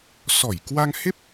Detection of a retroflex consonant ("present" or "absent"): absent